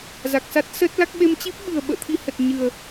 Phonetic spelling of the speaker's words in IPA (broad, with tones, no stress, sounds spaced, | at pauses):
z a˨˩ k̚ s a˦˥ t̚ s ə˦˥ t̚ l a˦˥ k̚ ɓ e˧ m t͡ɕ i˦˥ p̚ ɓ ɨ˨˩ ə̯ ɓ ə̰ː˧˨ t̪ʰ i˧ h ə˨˩ t̚ ɲ ɨ˨˩ ə̯